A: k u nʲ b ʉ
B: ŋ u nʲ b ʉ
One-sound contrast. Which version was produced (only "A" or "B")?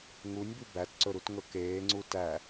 B